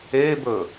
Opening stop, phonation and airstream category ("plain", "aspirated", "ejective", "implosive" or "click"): plain